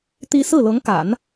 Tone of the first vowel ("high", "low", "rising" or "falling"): high